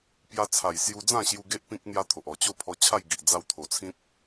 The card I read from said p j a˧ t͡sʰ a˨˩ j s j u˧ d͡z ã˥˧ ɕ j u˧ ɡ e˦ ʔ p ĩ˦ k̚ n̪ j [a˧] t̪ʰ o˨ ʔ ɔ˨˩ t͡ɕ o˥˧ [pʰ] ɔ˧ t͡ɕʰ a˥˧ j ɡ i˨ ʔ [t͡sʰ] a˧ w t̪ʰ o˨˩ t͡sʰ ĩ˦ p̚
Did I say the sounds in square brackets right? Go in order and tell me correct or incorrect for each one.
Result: correct, correct, incorrect

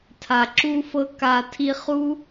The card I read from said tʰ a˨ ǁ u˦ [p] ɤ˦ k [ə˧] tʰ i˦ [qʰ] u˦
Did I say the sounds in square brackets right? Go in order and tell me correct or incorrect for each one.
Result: incorrect, incorrect, incorrect

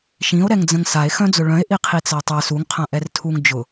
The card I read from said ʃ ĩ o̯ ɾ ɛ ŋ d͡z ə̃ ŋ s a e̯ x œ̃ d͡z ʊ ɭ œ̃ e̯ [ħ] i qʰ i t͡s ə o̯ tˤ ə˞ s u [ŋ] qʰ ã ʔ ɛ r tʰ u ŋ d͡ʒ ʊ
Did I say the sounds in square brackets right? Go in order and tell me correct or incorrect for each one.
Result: incorrect, correct

